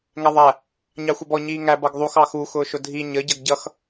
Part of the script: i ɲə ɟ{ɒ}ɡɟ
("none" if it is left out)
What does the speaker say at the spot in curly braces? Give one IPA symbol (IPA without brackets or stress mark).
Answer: ʌ